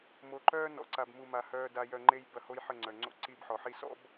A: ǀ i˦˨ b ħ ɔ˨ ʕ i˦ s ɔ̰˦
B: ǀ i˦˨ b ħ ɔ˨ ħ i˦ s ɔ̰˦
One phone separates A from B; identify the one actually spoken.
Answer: B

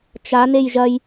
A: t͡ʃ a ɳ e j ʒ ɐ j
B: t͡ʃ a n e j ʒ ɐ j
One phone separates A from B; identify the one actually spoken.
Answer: B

